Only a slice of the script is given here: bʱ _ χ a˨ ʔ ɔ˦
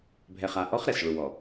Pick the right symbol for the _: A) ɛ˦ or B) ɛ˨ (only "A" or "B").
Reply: B